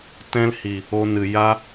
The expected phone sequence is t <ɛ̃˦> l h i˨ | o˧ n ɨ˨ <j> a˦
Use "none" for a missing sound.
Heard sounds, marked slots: ɛ̃˦, j

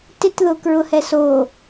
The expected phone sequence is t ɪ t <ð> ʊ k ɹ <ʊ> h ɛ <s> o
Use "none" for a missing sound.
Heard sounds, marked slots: ð, ʊ, s

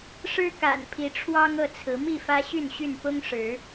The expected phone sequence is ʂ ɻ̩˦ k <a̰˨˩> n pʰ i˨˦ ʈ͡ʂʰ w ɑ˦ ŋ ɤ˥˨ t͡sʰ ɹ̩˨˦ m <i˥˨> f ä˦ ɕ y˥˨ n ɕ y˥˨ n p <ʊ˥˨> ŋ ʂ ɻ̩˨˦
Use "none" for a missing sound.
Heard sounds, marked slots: a̰˨˩, i˥˨, ʊ˦

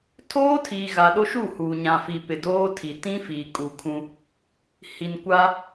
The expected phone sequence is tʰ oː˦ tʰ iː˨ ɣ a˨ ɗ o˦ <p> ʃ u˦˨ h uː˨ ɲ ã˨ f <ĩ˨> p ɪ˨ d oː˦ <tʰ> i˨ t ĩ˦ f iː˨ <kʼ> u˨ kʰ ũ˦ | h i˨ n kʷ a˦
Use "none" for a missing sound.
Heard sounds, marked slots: none, i˨, tʰ, kʼ

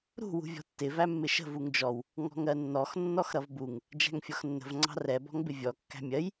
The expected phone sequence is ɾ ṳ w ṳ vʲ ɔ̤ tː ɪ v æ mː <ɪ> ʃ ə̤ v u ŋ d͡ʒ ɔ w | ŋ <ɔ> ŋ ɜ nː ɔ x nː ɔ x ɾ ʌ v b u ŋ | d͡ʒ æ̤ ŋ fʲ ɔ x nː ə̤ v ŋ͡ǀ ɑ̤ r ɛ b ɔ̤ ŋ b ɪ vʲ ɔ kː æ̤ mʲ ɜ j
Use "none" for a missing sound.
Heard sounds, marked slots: ɪ, ɔ̤

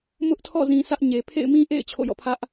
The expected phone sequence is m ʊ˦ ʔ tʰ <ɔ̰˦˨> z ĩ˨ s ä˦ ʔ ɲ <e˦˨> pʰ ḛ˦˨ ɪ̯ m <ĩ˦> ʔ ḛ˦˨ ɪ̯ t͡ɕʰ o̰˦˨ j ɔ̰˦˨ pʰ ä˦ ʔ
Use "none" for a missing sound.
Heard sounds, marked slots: ɔ̰˦˨, e˨, ĩ˦

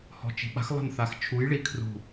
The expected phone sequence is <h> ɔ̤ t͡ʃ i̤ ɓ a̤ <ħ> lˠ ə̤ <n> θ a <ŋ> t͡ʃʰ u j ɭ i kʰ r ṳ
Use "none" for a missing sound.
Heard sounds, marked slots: h, x, n, x

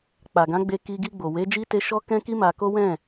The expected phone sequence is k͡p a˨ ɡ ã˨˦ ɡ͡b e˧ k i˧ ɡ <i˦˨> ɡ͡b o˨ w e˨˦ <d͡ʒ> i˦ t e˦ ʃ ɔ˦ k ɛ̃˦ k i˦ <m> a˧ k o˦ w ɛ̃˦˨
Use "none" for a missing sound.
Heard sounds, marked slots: i˧, d͡ʒ, m

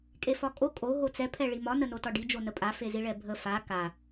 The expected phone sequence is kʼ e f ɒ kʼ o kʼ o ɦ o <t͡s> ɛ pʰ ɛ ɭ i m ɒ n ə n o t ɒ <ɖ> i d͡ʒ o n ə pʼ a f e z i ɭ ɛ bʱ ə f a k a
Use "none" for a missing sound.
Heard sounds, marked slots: t͡s, ɖ

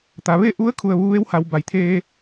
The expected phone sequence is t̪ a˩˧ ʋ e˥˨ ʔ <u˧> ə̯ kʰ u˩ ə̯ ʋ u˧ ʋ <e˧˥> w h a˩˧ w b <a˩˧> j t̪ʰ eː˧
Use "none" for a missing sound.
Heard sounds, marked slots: u˧˥, e˧˥, a˩˧

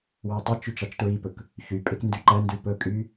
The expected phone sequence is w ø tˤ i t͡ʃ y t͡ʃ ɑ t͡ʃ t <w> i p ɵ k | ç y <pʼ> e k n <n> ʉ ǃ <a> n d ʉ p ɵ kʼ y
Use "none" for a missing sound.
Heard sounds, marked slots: ɹ, pʼ, d, æ

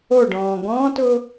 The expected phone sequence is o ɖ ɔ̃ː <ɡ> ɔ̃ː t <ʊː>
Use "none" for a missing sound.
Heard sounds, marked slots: ɡ, ʊː

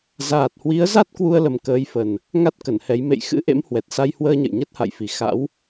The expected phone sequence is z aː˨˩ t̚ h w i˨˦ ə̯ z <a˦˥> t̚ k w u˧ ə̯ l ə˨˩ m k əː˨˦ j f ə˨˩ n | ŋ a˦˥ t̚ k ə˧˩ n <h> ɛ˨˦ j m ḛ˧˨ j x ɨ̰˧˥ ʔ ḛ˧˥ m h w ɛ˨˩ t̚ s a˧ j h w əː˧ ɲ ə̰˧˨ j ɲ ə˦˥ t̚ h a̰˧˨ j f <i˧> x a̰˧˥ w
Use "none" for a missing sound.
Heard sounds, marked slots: a˦˥, h, i˨˩

